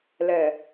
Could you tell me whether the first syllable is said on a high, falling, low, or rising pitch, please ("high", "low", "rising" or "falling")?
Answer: low